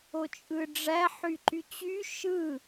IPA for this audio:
o t͡ʃʼ ɯ ɖ͡ʐ æ ħ y ǃ y t͡ɕ y ʃ ɯ

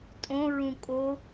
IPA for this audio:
tʼ õ ɹ ũ kʼ o

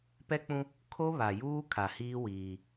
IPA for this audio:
p ɛ˦ k͡p ũ˦ | kʰ o˦ β a˨ j uː˦ kʰ a˨ h iː˦ w iː˦

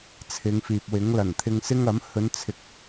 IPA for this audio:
t͡sʰ ɪ˨˧ ŋ f iː˨ p̚ w ɪ˨˥ ŋ l ɐ˨˩ n t̪ʰ ɪ˧ ŋ s ɪ˥ ŋ ɐ˨˥ m h ɵ˨˧ n t͡sʰ ɪ˨ k̚

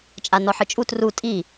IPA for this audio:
t͡ʃʼ a n ɔ ħ ɯ t͡ʃʼ u t r u tʼ i

